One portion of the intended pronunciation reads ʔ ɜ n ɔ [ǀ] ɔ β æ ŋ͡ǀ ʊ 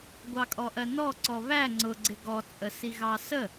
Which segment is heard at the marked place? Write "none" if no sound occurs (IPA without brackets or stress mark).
ǀ